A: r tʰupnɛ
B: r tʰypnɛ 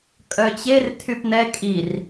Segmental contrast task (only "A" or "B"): B